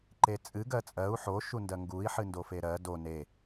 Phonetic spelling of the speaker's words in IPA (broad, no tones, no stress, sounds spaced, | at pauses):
ǃ e t͡sʼ ɨ ɡ ɜ t͡sʼ ɜ u̯ ħ o ʃ u n d ɜ ŋ ɡ u i̯ ħ ɨ n d o f e ɾ ɜ d o n e